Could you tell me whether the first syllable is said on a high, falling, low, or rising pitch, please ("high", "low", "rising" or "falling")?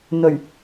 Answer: low